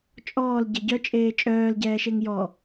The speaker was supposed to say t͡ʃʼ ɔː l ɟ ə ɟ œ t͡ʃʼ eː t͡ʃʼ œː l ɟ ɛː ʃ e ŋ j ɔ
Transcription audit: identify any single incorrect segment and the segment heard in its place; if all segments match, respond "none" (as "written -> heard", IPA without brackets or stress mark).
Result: none